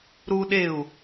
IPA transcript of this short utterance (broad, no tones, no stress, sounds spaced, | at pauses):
ɾ u ɗ e u̯